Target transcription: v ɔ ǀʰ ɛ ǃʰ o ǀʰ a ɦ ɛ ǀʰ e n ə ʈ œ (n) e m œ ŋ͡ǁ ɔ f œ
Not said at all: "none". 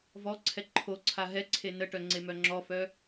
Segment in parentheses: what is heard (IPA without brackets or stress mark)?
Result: ŋ͡ǀ